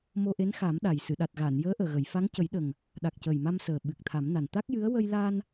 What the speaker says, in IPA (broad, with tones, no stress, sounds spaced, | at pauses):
m o˧ ʔ e˧˥ n x a˨˩˦ m ɗ a˨˩ j s ɨ˨˩˨ ɗ a˨˩ t̚ ɣ aː˨˩˨ n j əː˧˥ ʔ əː˨˩ ɣ ə˨˩˨ j f a˧˥ ŋ c ə˨˩˦ j ɗ ə˨˩ ŋ | ɗ a˨˩ k̚ c ə˨˩ j m a˧ m s əː˨˩ ɓ ɨ˨˩ k̚ t̪ʰ a˨˩˦ m n a˨˩ n t̪ a˦˥ k̚ j ɨ˧˥ ə̯ w ə˧ j l a˧ n